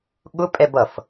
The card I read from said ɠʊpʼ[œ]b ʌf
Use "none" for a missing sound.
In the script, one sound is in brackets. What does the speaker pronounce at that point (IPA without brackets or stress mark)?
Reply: ɛ